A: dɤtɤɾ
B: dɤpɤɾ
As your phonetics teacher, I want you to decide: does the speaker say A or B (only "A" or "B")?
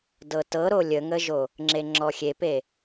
A